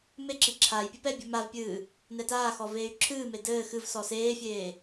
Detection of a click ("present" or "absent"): present